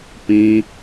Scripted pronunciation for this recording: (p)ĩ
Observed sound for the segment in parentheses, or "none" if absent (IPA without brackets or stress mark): p